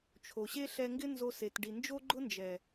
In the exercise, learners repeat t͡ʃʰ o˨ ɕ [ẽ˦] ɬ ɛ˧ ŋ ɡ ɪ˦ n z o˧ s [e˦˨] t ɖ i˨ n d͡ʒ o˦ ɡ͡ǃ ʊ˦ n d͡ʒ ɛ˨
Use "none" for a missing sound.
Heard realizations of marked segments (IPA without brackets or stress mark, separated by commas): e˦, e˨